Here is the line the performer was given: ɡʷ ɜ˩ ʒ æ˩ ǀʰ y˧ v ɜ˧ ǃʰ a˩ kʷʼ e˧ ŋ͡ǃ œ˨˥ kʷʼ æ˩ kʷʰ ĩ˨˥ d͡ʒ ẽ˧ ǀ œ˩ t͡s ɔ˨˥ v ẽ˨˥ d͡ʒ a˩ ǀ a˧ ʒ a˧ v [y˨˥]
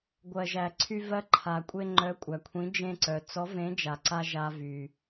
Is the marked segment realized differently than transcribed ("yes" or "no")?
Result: yes